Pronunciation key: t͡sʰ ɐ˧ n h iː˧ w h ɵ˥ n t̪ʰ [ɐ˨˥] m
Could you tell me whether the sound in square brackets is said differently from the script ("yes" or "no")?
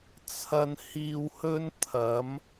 no